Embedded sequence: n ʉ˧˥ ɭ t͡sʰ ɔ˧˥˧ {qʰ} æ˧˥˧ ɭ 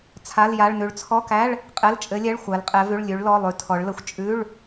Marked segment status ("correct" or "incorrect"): incorrect